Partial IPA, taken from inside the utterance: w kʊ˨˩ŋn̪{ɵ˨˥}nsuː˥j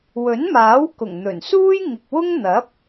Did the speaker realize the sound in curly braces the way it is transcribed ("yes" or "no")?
no